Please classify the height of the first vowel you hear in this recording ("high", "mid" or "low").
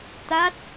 low